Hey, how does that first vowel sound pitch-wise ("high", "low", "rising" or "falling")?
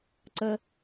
low